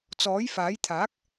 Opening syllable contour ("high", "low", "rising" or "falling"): rising